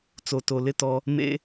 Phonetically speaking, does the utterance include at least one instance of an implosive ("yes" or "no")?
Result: no